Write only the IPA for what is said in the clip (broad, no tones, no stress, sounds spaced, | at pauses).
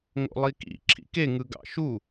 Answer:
ŋ o̰ lˠ i k ḭ ǁʰ ḭ k e ŋ ɯ ɡ ɑ̰ ʃ u